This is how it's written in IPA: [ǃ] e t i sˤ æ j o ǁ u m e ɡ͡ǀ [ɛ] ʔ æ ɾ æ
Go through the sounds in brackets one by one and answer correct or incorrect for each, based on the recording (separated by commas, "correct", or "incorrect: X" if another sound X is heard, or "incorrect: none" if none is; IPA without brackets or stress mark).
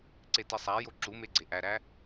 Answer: incorrect: ǀ, incorrect: e